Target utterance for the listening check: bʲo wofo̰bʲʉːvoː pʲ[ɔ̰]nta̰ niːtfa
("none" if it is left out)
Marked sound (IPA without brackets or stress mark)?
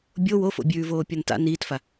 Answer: ɔ